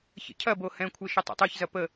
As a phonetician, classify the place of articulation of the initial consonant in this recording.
palatal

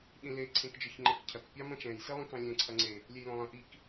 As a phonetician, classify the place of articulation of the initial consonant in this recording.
alveolar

